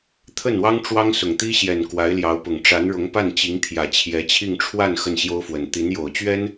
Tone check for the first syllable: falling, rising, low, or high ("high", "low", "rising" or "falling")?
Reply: falling